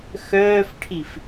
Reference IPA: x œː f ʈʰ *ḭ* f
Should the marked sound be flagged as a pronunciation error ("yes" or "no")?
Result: yes